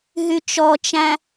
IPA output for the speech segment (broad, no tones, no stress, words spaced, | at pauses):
ɦyt͡ʃɔt͡ʃæ̃